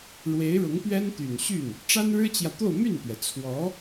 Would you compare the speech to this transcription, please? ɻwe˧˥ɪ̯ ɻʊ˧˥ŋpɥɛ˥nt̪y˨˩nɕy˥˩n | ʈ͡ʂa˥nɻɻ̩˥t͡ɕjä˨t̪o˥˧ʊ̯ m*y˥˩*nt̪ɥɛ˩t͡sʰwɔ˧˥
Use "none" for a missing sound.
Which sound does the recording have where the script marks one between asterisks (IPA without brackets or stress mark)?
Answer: y˥˩